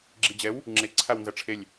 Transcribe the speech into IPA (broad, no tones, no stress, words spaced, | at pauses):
ɡ͡ǁid͡ʑɛw | ŋ͡ǁe ǀʰawnzɐʈ͡ʂʰelʲ